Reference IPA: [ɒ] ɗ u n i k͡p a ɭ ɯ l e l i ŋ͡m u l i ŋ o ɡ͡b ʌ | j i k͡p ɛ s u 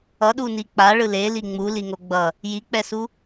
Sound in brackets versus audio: incorrect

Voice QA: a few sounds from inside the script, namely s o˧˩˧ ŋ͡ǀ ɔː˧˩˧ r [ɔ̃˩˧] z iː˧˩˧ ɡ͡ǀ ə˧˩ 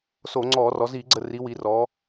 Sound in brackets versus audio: incorrect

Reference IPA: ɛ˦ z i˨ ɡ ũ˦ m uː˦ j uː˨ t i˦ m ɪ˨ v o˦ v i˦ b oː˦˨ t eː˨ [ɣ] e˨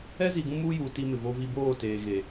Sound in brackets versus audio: correct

